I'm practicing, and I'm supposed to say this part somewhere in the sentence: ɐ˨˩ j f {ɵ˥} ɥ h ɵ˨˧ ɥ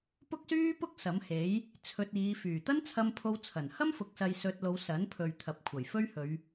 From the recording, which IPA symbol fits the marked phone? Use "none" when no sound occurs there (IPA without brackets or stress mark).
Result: ɵ˥